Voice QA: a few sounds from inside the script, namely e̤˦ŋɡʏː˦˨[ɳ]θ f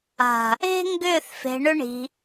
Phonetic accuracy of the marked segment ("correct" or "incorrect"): incorrect